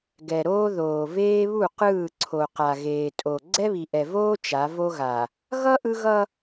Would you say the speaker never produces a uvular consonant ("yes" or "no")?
no